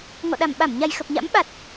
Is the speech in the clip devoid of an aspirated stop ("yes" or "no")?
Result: yes